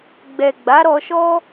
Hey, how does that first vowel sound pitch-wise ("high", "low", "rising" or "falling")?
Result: low